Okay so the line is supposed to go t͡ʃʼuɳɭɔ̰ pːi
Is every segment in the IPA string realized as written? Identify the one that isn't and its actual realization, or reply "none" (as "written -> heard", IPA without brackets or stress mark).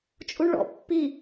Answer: none